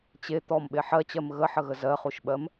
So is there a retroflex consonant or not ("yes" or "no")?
no